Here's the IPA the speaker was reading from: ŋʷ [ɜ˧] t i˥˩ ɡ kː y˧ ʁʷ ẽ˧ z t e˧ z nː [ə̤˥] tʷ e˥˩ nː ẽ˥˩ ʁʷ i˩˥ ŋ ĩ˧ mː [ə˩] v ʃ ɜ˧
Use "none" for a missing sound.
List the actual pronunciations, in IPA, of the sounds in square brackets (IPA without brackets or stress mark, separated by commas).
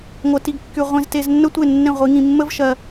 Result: ɜ˧, ə˥, ə˥